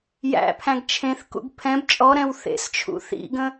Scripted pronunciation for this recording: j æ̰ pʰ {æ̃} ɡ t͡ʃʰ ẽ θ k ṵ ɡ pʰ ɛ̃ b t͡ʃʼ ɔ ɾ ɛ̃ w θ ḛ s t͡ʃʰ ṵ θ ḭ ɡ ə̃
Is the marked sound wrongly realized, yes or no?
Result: no